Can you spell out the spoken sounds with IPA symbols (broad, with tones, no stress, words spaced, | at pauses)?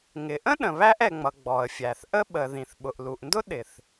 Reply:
ŋɪ˩ʔə̃˥ ɗə̃˩βæ˥ʔɛ˩ŋ͡mʌ˩ ɡ͡bɔ˩ə̯fʲæ˩θʔə˥ ɓə˩ ðĩ˩θɓʊ˩ʔlu˩ʔndʊ˥ ɗɪ˩θ